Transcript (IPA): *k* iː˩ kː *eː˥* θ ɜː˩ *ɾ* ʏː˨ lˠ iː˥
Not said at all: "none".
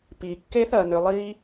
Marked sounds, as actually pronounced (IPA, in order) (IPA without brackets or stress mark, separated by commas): p, eː˥, n